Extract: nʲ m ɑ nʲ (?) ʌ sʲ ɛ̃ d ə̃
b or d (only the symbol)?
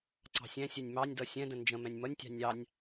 d